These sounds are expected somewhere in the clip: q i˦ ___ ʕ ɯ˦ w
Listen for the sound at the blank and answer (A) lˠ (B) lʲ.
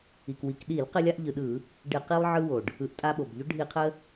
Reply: A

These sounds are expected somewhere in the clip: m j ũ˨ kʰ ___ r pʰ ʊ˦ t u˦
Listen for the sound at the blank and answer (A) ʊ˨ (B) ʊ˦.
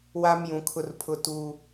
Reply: B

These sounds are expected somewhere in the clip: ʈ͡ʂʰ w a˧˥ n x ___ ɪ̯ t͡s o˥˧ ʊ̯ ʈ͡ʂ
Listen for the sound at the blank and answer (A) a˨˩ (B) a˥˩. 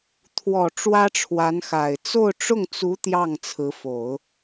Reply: A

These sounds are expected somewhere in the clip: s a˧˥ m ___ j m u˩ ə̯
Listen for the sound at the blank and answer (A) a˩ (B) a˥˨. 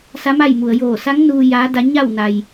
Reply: B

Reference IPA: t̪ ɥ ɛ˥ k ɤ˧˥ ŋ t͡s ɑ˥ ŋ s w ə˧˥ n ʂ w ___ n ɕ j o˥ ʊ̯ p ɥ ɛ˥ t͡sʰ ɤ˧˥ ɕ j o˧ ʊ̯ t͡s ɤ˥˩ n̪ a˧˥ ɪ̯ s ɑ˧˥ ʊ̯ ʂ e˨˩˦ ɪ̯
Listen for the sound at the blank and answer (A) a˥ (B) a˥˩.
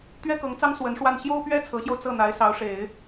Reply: B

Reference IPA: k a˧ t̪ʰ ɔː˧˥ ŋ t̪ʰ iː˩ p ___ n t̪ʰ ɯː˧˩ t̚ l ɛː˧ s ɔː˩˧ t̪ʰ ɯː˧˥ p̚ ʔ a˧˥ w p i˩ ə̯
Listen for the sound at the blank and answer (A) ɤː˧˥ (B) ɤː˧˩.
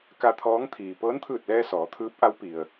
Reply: A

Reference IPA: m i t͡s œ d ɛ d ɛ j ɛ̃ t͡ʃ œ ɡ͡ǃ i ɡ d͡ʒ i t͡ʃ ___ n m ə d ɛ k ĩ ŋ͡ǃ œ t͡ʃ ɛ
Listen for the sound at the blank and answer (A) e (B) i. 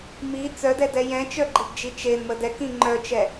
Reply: A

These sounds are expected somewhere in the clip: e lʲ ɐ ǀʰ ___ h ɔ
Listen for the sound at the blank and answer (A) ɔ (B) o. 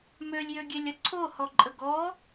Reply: B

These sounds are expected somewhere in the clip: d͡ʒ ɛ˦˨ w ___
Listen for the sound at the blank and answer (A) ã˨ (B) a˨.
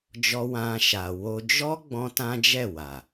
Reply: B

